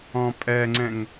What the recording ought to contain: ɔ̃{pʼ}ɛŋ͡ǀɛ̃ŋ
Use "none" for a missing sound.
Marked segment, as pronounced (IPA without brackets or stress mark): pʼ